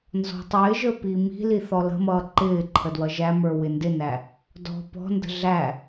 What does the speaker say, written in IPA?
n z ɔ̤ tˤ ɪː ʒ ə˞ p i m i̤ l i θ ɔ l ə̤ m ʌː ǃ ɪː ǃʰ ə d w ʌ ʒ æ m ə˞ w ɪ n d ɪ n æ | d ɔ̤ p ɔ̤ n d ə̤ ɮ æ

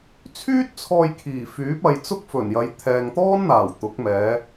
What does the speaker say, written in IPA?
t͡sʰ yː˥ t̚ t͡sʰ ɔː˧ j kʰ iː˨˩ f yː˨˥ p̚ ɐ˧ j t͡s ʊ˥ k̚ f ɵ˨˩ n j ɐ˨˧ j t̪ʰ ɛː˨ ŋ t̪ ɔː˥ n n̪ aː˨˩ w t̪ ʊ˨˥ k̚ m ɛː˨˧

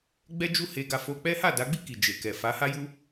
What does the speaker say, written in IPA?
ɡ͡b ɛ˦ d͡ʒ u˦ h e˧ ɡ a˧ f o˧ k͡p ɛ˦ h a˦˨ d a˨˦ ɡ͡b i˦˨ k i˨ d͡ʒ e˨ k ɛ˨ f a˨˦ h a˦ j u˦

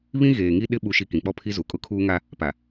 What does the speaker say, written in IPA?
β ĩ˦ ɣ eː˨ ŋ i˦ ɗ ɪ˦ ɓ u˨ ʃ i˨ k ĩ˨ k͡p ɔ˦ pʰ i˦ z u˨ kʼ ʊ˦ kʰ uː˦ ŋ a˦ | p a˨

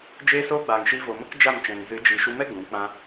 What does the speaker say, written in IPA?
d͡ʒ eː˦ s oː˦ ɡ͡b aː˨ ŋ ʃ i˧ v o˨ m ə˦ k d͡ʒ a˦˨ m t͡ʃ ɛ̃˨ ŋ z ɨ˨˦ d͡ʒ iː˨ ʃ u˧ m ɛ˦ ɡ ũ˨˦ k͡p ã˧

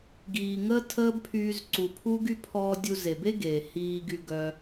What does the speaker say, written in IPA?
ɡ iː˨ ŋ əː˦ tʰ əː˦ b pʰ yː˧ z ǀ u˨ pʰ u˦ ɡ y˦ pʰ ɔː˧ dʲ u˧ z e˨ b e˦ ɡ e˨ h iː˧ ɡ y˧ ɡ œ˧

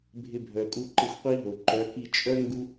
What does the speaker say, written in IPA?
bʱ ɪ˧ bʱ œ˨ kʼ u˧ ǃ ɪ˧ xʷ qʷ i˦ ɦ o˨ ǃ œ˨˦ k i˧ t͡ʃʼ œ˦ ŋ ɡ u˦

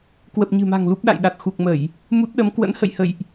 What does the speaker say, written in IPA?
k w ə˨˩ p̚ ɲ ɨ̤˨˩ m a̤˨˩ ŋ l u˦˥ p̚ ɗ a̰˧˨ j ɗ a˨˩ t̚ x u˨˩ k̚ m ə˧˩˨ j | m u˦˥ t̚ ɗ ə˨˦ m k w ə̰˧˥ n h ə̰˧˨ j h ə̰˧˨ j ʔ

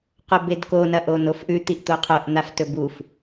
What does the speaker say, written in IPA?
q o b e d k o n ɐ ʔ o n o f ʔ ʉ t̪ i ʔ t̪ o qʰ o ʔ n̪ a f t ɵ b u f

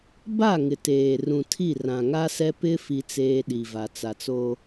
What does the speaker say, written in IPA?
b a˦˨ ŋ ɪ˨ t eː˨ r ũ˨ tʰ i˦˨ r ã˨ ŋ a˦ s ɛ˦ p ɪ˦ f i˦ t͡s eː˦ ɗ i˨ v a˨ t͡s a˨ t͡s o˦

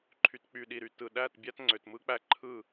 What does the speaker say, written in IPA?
ǃʰ y˨ t k͡p y˨ ɗ i˨ ɾ y˨ t ɯ˨ ɗ æ˦˨ t bʲ æ˦ t ŋ͡ǀ ø˨ t m ɯ˦ k͡p æ˦ ǃʰ ɯ˦˨

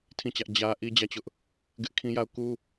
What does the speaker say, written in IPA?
tʰ ĩ˦˨ t͡ɕ ä˦ ʔ d͡ʑ ä˦ ʔ i˦ d͡ʑ ä˦˨ t͡ɕ ʊ˦ ʔ | ɡ ɪ˦ ʔ kʰ ĩ˦ j a˦˨ ʊ̯ k u˦

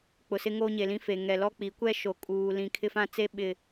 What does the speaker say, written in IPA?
k͡p ʊ˨ s ɪ˦ ŋ oː˦ ɲ e˨ l ĩ˦ f e˨ ŋ ɛ˨ l ɔ˦ k͡p i˨˦ kʷ ɛ˦ ʃ o˨ kʼ uː˨ l ĩ˨ kʰ ɪ˦ f ã˦ t͡s e˦ ɓ ɪ˨

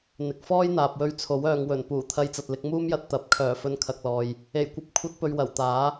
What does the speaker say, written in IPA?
n̪ ɪ˨ k̚ f ɔː˥ j n̪ aː˨ p̚ w ɵ˧ ɥ t͡sʰ o˨˥ w œː˨ ŋ w ɵ˨˩ n p uː˨˩ t̪ʰ ɐ˧ j t͡s ɐ˨ t̚ l ɪ˧ k̚ m uː˥ m j ɐ˧ t̚ t̪ ɐ˨˥ p̚ kʰ œː˨˩ f ɵ˧ n kʰ ɐ˨ k̚ l ɔː˨ j | e˨˩ j kʷ ɐ˧ p̚ kʷʰ ɐ˧ t̚ p ɵ˨ ɥ w ɐ˨˩ w t̪ aː˨˥

